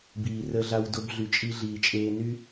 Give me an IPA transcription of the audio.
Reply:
b iː˨ r əː˦ ɮ a˦ w d o˧ b ɮ y˨ t͡ʃʼ i˧ ɮ iː˨ t͡ʃʼ eː˧ n y˦

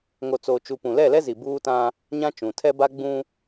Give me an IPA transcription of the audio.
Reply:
ŋ o˨ t͡s oː˨ t͡ʃ u˨ p ũ˨ l ɛ˦˨ l ɛ˦ z i˨ b uː˦ t ã˦ | ɲ ã˦ t͡ʃ ũ˨ tʰ ɛ˦ b a˦ ɡ͡b ũ˦

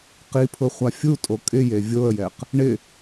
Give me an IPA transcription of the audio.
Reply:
q i pʰ ʊ χʷ a fʲ u tʼ o kʼ ɪ j e vʲ o ə̯ j ɛ q | ɳ ɪ

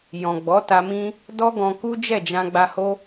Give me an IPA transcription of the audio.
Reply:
j ɔ̃˨ ɡ͡b ɔ˨˦ t a˧ m ĩ˦ | d ɔ˦ ɡ ɔ̃˧ k u˦ d͡ʒ ɛ˦˨ d͡ʒ ã˧ ɡ͡b a˧ h o˦

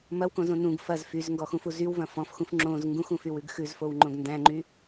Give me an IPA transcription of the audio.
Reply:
m ɐ w k õ z õ n ũ ɡ f ɐ z f y z ŋ ɡ ɔ x ũ f u z y w v ɐ̃ f ɔ̃ f x ũ f ŋ͡ǁ õ z ŋ ɡ ũ x ũ f y w ʉ ɡ x ʉ z f o w ŋ͡ǃ õ ɡ n d æ̃ ŋ͡ǃ y

